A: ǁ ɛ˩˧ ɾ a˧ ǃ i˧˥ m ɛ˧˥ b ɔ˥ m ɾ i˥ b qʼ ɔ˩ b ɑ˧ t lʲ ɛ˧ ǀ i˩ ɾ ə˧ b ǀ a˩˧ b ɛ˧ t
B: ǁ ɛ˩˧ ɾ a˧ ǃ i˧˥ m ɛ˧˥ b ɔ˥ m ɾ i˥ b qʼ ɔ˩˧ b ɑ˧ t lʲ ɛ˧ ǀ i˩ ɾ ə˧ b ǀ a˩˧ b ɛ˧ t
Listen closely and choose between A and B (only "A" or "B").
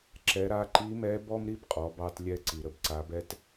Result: B